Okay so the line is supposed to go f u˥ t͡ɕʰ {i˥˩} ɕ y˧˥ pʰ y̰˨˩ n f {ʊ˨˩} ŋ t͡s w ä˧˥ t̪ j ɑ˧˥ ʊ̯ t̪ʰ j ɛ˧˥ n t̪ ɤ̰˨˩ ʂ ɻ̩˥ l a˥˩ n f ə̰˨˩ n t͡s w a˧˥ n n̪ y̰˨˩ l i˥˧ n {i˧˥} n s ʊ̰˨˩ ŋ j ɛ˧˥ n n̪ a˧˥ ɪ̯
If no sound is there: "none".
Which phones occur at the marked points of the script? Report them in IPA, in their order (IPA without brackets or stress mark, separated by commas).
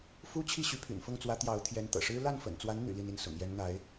i˥˩, ʊ˥˩, i˥˩